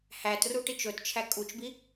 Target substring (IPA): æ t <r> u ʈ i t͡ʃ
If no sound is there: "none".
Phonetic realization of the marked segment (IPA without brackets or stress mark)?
r